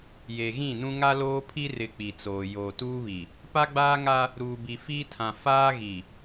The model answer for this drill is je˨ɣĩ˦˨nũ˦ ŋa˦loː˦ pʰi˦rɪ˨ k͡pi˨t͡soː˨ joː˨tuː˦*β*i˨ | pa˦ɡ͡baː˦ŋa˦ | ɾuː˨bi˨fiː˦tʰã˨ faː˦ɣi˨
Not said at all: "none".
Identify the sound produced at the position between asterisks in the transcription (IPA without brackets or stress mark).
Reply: β